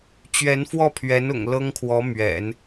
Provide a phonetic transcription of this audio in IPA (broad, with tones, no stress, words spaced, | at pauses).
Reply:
t͡ɕɥɛ˧˥nfwɔ˥˩pʰɥɛ˧˥nʊ̰˨˩ŋ lɤ˥ŋkʰwɔ˧˥ mɥɛ̰˨˩˦n